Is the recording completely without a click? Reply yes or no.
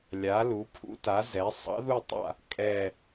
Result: yes